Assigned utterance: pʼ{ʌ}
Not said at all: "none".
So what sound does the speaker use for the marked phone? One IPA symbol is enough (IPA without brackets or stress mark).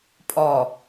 ɔ